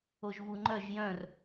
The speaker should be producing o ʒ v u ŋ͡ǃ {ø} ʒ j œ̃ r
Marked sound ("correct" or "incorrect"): incorrect